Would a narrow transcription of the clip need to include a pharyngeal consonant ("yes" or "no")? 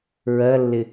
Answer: no